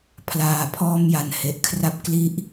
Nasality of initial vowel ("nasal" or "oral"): oral